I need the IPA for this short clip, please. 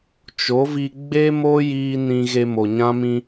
t͡ʃ o˨˦ v i˧ ɡ͡b e˦ m o˦ j iː˦ n ĩ˦ ɣ e˧ m o˨ ɲ ã˦ m ĩ˦

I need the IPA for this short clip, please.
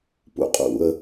p ṵ qʼ ṵ ə̯

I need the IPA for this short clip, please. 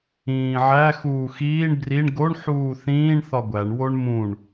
ĩː ʕ æ x uː x iː ɳ b r i ɳ ɡ o ɳ ħ uː θ ĩː ɳ θ ɒ ɡʷ æ ɳ w o ɳ m ũ ɳ

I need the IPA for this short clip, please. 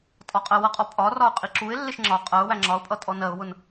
tʼ ɒ qʼ ɜ w ʌ qʼ ɔ pʼ ɒ r ɒ ʊ̯ qʼ i ǁ u ɪ̯ lː ɪ ʃ ŋ͡ǁ ɒ qʼ ɜ ʊ̯ w æ ŋ͡ǁ ɒ ʊ̯ pʼ ʌ tʼ ɔ n ɜ ʊ̯ w ʊ n

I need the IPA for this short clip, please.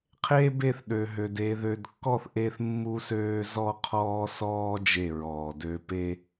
qʰ e˦ b e˦˨ θ ɗ ø˨ ɦ ø˨ d e˨ ð ø˨ d kː ɔ˦˨ θ ʔ e˦ θ mː u˦ s øː˦ z ɔ˦ qʰ ɔː˦ s ɔː˦ d͡ʒ e˦˨ ɹ ɔː˨ d ø˦ p e˦

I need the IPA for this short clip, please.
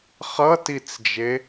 χ ʌ t i t͡s d͡ʒ e

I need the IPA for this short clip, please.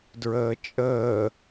d ɹ əː t͡ʃʼ əː

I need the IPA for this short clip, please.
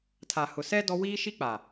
tʰ a˨ h ʊ˨ s ɛ˦ d ɔ˦ w iː˦ ʃ i˦ k͡p a˨

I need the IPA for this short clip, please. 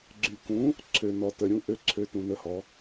ɡ͡ǀ y˨ k ũ˨˦ | ǀʰ ø˨ n ɔ˨ t ə˨ ɾʲ ũ˨˦ ʔ ø˨˦ ǀʰ ø˨˦ t ũ˨ n ə˨˦ h ɔ˨˦

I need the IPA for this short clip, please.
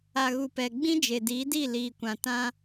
a˨ ɣ u˨ p ɛ˨ ɡ͡b ĩ˦ d͡ʒ e˨ d iː˨˦ d i˦˨ l iː˨ kʷ ã˨ t ã˦

